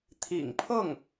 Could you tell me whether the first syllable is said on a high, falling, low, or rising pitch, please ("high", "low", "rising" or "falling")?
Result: low